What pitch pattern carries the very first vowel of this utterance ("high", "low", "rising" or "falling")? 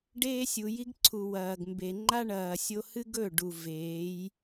high